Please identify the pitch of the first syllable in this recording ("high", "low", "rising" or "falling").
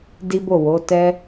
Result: high